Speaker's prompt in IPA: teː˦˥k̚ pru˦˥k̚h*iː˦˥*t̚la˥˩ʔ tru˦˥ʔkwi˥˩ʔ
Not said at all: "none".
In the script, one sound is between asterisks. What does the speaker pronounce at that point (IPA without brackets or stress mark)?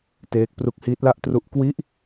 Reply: iː˦˥